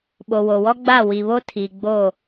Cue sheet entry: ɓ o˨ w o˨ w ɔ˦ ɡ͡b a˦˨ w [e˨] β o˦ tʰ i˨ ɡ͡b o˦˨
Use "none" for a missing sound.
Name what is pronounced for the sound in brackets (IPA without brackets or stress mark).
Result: i˨